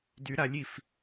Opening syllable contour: rising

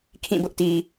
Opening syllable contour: falling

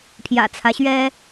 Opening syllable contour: low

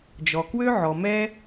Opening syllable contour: low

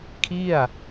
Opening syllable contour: falling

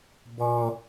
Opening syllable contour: high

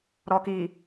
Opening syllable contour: low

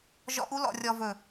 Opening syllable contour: rising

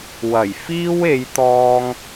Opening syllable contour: low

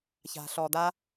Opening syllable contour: low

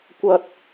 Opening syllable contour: high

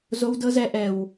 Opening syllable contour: low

